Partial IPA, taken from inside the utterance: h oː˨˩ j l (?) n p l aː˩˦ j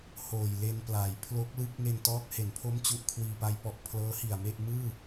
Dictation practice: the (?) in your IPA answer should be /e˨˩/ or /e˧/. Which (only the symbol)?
e˧